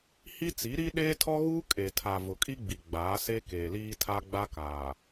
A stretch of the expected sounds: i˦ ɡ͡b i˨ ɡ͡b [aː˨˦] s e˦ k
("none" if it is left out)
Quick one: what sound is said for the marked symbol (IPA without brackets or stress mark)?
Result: aː˨˦